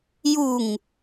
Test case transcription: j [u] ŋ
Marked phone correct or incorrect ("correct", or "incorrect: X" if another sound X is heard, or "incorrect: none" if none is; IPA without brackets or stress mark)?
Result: correct